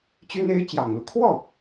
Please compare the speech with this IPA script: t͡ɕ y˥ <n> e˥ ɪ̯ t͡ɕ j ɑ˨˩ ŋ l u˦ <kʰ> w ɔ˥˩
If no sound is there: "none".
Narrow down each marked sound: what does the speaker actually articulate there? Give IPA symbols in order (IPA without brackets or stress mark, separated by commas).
n, kʰ